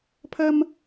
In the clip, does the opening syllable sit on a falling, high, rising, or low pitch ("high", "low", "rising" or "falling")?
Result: high